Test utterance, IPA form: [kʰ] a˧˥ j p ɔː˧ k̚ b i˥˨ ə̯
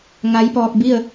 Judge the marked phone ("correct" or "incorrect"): incorrect